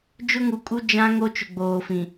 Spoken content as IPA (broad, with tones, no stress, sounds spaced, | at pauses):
d͡ʒ ʊ˦ ŋ u˨ kʼ u˦ d͡ʒ ã˦ ŋ o˦ t͡ʃ ʊ˨ ɡ͡b oː˨ f ĩ˨